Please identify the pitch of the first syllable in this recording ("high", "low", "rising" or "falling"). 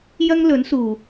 high